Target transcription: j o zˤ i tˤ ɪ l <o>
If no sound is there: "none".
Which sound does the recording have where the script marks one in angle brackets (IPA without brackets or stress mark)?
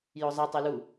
u